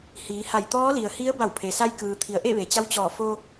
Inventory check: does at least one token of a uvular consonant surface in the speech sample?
no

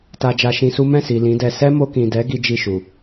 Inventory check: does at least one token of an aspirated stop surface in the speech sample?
no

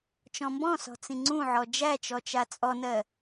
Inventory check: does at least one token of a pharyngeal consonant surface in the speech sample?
yes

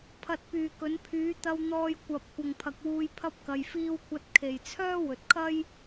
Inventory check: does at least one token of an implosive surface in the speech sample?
no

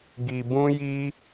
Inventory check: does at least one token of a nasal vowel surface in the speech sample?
yes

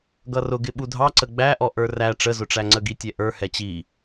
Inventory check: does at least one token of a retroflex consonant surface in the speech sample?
yes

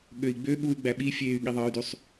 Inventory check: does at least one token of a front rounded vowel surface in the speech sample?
yes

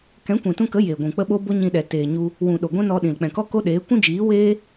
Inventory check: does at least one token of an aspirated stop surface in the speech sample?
no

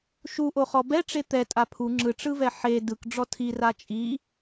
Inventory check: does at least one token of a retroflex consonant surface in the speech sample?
yes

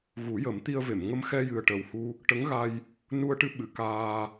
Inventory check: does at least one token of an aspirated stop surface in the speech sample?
no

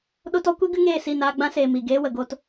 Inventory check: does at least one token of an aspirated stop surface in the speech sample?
no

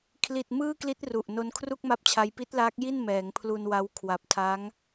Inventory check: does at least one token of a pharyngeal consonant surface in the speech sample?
no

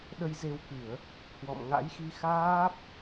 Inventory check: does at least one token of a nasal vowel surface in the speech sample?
no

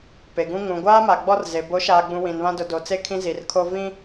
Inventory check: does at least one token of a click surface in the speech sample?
no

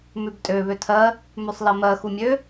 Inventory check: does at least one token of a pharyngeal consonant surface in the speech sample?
no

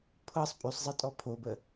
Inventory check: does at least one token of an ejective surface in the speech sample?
yes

